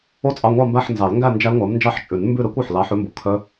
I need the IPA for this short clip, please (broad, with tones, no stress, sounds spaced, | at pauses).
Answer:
o˥˧ t͡sʼ ɑ˧˥˧ ŋʷ ɑ˥˧ m b æ˥˧ ħ n z ɑ˨˩˦ l ŋ ɡ æ˥˧ n d͡ʒ æ˦˥ l ŋʷ æ˨˥ m n d͡ʒ ɑ˦˥ ħ t͡ʃʼ ʉ˨˩˦ n m b ʉ˥˧ ɾ ɛ˦˥ kʷ ɵ˩˧˩ ħ l ɑ˨˥ ħ ʉ˨˥ m b o˩˧˩ kʰ œ˦˥